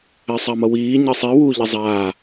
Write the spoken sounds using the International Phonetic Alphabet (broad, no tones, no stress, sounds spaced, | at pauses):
ɛ sˤ a m ʌ w iː ɲ ə sˤ i w u ʎ ɛ zˤ aː